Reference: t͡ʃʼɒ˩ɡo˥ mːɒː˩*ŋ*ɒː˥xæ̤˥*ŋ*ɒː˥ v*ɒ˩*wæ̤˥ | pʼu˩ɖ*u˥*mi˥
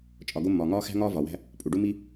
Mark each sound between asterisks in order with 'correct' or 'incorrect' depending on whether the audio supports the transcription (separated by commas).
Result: correct, correct, correct, correct